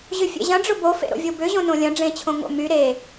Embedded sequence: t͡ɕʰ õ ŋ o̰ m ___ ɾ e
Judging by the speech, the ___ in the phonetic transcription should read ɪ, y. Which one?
y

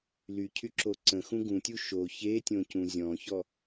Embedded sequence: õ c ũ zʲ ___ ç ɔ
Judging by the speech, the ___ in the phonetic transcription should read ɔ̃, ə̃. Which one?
ɔ̃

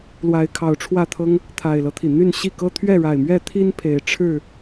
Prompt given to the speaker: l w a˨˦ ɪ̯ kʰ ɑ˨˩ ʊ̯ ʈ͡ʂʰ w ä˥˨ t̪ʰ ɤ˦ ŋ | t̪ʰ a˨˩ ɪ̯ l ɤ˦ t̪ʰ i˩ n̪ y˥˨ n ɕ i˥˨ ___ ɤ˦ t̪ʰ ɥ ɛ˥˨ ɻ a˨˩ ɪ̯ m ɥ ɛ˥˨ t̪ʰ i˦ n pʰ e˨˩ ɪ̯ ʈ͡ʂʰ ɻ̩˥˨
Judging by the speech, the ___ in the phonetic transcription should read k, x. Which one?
k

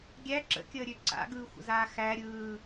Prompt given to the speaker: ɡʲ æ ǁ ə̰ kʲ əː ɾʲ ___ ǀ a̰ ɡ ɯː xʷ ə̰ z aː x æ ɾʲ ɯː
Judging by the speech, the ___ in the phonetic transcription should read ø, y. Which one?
ø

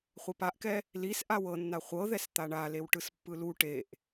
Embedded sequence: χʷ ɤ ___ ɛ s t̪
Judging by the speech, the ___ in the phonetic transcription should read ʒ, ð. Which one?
ð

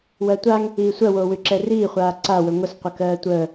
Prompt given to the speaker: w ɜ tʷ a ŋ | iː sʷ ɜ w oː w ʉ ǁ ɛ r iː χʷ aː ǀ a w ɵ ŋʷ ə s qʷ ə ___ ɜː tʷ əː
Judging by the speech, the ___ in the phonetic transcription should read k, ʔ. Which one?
k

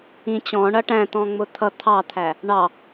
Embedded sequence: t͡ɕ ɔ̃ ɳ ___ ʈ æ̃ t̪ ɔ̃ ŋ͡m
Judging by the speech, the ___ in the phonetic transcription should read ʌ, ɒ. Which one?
ʌ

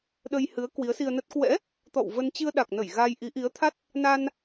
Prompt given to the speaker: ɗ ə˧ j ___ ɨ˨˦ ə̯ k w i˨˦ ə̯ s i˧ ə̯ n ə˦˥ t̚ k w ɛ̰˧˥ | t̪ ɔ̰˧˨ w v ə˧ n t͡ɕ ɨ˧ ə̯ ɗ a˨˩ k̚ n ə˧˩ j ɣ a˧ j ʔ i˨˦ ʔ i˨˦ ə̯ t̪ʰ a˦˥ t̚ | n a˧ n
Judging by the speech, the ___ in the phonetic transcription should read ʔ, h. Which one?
h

